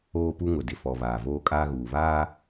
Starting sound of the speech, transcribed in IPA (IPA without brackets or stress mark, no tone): oː